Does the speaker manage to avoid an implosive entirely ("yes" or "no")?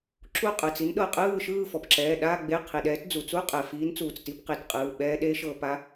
no